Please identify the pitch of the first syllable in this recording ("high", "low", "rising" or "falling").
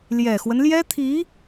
low